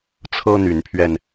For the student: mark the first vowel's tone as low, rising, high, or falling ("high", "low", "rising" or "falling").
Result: high